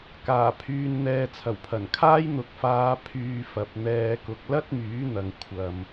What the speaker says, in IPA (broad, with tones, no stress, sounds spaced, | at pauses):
k aː˨˩ pʰ yː˨ n n̪ ɛː˨ t͡sʰ ɐ˨˩ w pʰ ɐ˨˩ n kʰ aː˥ j n̪ ʊ˨ k̚ f aː˨˧ pʰ yː˧ f ɐ˨ p̚ n̪ ɛː˧ k ʊ˨ k̚ l ɐ˥ t̚ m yː˨˥ n̪ ɐ˨ ŋ kʷʰ ɐ˨ m